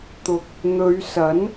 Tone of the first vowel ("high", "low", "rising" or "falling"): low